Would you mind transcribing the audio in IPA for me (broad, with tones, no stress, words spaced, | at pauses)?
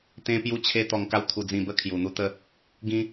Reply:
t̪ẽ˦pju˦t͡ɕʰe˦ t̪ɔ˧ŋka˦w t̪ʰu˧d͡zĩ˧bə˦ kʰju˨˩n̪u˧t̪ə˥˧ | ɡĩ˧